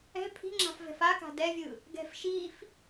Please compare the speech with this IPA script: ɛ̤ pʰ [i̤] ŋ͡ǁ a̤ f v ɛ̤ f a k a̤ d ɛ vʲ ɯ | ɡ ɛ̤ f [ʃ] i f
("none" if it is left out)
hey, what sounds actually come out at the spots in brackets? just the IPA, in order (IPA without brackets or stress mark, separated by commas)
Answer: i̤, ʃ